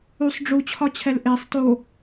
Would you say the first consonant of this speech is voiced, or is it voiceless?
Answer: voiceless